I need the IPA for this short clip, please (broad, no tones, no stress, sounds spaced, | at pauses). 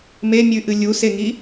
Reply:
m e mʲ ʉ ʔ ɨ lʲ u s e ŋ i